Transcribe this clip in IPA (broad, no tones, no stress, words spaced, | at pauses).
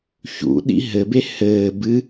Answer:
çṵɗḭ ɦɘbe hɘː bɨ